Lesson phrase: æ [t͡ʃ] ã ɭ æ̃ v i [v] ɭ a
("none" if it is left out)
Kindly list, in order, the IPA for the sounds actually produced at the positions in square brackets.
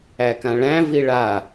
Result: k, none

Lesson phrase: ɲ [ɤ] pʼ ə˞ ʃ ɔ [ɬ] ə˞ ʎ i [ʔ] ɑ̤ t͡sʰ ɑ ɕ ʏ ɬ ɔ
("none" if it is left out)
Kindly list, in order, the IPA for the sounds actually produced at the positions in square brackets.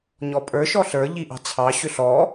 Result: ɔ, ɬ, ʔ

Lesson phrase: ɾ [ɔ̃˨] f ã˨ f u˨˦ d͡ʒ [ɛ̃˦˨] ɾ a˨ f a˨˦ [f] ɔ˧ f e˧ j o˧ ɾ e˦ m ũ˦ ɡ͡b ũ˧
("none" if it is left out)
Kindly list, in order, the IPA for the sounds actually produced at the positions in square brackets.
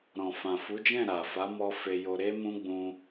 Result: ɔ̃˨, ɛ̃˦˨, m

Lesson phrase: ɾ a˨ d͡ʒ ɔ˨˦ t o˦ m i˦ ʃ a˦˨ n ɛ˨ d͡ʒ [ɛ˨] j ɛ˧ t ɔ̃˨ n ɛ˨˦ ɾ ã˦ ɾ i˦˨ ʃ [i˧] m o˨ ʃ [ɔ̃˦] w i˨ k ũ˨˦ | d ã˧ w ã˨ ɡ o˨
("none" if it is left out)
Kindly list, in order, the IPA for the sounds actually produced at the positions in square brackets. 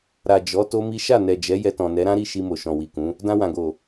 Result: ɛ˨˦, i˧, ɔ̃˨

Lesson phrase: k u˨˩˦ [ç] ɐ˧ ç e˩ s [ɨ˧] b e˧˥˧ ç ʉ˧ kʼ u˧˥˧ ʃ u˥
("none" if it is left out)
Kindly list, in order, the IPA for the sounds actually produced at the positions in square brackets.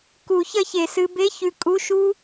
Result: ç, ɨ˧

